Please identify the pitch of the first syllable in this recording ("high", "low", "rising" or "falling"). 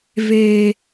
low